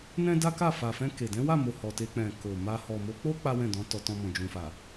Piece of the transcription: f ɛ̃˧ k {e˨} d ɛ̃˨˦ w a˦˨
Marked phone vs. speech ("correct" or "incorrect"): correct